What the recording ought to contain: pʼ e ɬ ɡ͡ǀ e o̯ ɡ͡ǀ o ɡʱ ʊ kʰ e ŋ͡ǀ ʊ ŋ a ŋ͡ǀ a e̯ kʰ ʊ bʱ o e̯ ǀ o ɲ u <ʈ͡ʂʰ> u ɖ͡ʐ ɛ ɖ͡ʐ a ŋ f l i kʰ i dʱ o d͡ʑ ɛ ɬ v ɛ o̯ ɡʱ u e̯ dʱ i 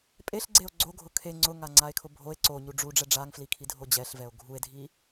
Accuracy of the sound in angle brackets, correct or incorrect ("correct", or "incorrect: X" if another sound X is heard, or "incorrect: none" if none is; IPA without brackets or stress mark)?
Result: incorrect: ɖ͡ʐ